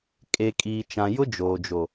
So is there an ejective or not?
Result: yes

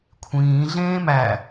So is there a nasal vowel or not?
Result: yes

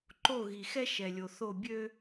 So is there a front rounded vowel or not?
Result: yes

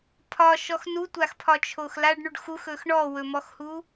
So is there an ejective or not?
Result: no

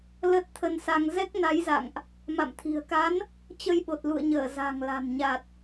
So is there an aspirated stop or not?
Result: yes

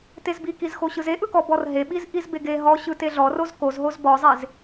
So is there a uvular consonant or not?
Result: no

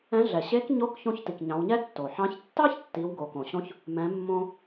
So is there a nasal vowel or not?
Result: yes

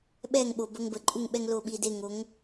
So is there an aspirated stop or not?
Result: no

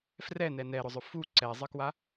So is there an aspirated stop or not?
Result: no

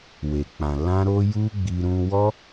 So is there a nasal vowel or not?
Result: yes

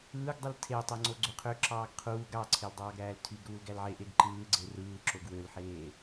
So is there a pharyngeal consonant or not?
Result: yes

